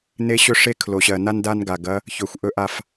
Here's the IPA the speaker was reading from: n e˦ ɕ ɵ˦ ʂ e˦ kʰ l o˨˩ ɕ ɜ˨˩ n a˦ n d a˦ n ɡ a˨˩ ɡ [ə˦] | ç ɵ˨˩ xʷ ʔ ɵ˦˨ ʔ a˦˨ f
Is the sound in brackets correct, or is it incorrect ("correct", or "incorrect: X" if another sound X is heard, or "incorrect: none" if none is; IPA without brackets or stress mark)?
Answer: incorrect: ɐ˦